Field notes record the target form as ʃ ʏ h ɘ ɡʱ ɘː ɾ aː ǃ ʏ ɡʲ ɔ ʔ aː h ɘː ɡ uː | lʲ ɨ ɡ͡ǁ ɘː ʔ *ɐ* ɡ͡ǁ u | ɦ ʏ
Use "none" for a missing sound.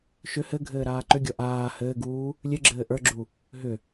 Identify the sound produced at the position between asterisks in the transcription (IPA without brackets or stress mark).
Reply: ə˞